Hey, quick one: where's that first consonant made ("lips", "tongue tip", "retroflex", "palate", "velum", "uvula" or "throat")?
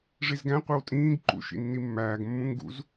retroflex